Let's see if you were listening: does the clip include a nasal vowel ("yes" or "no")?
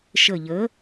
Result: no